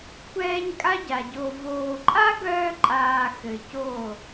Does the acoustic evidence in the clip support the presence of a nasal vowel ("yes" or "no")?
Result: no